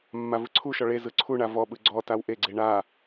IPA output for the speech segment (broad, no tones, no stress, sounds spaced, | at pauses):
mː a v ɯ ǀʰ u ʃ ɔ ɭ e z ɯ ǀʰ u ɳ a v ɔ ɓ ɯ ɡ͡ǀ ɔ t a w ʔ e ɡ͡ǀ e ɳ a